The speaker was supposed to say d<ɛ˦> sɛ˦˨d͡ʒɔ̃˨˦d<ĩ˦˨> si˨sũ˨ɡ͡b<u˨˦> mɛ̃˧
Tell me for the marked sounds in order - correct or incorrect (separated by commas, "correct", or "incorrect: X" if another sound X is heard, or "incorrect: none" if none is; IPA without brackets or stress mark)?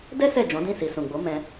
correct, correct, incorrect: o˨˦